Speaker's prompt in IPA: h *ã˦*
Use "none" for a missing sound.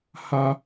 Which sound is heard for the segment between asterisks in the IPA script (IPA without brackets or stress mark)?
a˦